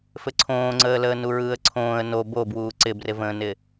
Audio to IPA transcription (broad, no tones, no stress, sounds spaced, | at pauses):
f ɘ ǀʰ õː ŋ͡ǀ əː l əː n u ɹ ɯː ə̯ ǀʰ õː ə̯ n o b o b w uː ǀ ɪ b r ɪ v ə̃ː n ɪ